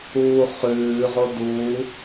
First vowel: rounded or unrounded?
rounded